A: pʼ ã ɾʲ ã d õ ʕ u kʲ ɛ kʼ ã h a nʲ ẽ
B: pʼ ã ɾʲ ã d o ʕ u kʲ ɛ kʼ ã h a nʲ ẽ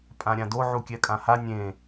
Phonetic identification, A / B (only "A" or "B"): B